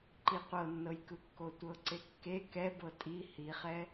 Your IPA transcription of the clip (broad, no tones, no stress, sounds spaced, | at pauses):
ǃ i qʷ ɤ nː ɤ j k ɯ kː o tʷ ɤ ǀ e kː e k ɛ b ɤ tʼ i h i χ ɛ